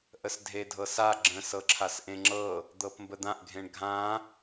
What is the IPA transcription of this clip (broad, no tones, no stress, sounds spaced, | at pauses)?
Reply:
ʔ ə s dʱ e dʱ ɤ s a ɡ͡ǁ ə̃ s ɤ ǁʰ a s ʔ ẽ ŋ͡ǁ ɤ | d̪ ɤ p m b ə d̪ ã ʔ ɡʱ ẽ ɳ ɡʱ ã